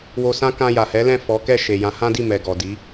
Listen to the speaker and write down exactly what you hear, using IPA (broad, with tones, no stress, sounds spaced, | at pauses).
w o˧ s ã˦ k ã˧ j a˨ h ɛ˨˦ l ɛ̃˦˨ f ɔ˨˦ k ɛ˦˨ ʃ e˨ j ã˨˦ h ã˦ d i˦˨ m ɛ˨ ɡ ɔ˨ d i˨˦